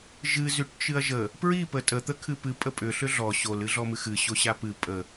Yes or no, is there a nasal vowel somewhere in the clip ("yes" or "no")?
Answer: no